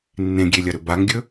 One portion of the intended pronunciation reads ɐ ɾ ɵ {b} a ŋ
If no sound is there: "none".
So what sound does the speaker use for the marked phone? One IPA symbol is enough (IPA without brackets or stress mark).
b